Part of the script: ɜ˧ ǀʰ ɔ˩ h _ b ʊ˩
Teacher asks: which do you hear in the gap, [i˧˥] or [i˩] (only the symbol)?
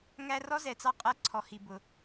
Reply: i˩